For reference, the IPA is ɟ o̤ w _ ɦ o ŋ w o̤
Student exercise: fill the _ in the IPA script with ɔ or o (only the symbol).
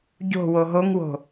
o